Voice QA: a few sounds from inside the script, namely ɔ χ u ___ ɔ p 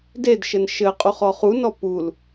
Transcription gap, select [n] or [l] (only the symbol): n